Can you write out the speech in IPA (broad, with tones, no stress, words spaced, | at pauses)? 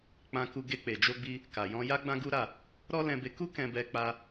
k͡pã˧ku˧ ɡe˧k͡pe˨d͡ʒo˧ɡ͡bi˧ | ka˨jɔ̃˧ ja˦ɡ͡bã˦ɡu˦ɾa˦˨ | ɾɔ˦lɛ̃˧be˧ ku˦ kɛ̃˧bɛ˧k͡pa˧